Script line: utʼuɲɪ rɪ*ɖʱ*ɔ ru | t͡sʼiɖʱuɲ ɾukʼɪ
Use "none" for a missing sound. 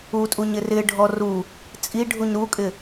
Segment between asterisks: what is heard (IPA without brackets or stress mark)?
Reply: ɖʱ